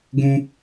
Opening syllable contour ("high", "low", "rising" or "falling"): high